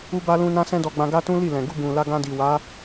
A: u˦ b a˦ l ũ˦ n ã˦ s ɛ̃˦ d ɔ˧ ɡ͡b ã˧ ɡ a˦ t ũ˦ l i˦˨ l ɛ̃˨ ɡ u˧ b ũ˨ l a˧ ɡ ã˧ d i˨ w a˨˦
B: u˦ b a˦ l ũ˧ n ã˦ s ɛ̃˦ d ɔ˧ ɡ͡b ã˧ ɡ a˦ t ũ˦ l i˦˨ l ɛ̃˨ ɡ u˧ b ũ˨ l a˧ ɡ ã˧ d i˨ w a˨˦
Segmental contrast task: A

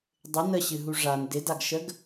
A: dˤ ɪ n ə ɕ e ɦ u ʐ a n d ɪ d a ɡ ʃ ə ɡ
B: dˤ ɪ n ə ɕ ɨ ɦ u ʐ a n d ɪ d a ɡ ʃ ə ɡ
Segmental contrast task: B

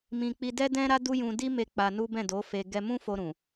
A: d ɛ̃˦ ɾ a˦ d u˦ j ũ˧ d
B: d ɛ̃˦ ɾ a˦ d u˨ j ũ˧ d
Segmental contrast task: A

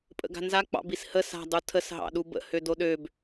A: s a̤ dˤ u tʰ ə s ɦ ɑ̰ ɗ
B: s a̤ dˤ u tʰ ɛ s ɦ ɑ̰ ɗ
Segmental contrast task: A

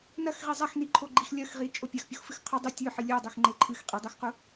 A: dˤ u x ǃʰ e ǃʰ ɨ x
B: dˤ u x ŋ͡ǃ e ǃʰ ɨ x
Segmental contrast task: B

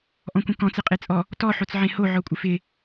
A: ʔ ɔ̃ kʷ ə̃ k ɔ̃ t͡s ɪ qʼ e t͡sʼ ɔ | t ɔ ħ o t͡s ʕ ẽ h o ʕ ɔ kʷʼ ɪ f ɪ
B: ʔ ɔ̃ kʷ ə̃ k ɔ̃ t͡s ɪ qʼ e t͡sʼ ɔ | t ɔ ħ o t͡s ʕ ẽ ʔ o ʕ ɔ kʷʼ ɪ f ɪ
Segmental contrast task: A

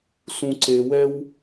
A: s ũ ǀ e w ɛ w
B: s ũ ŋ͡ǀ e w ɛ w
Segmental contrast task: A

